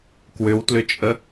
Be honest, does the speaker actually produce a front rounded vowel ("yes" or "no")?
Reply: yes